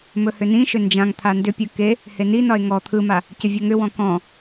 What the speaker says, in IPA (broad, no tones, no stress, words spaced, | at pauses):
mɵhʏnĩʃʏ nd͡ʒãŋ t̪ʰandʏpʲɯ ke | heninɒe̯ ŋɔ t̪ʰɯma | cʏvʲɵŋʏwɔ̃ kɔ̃